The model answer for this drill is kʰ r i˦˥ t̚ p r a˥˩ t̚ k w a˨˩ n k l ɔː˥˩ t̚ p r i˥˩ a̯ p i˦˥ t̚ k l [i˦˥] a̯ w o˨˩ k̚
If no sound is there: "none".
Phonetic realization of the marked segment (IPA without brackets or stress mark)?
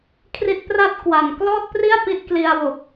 i˧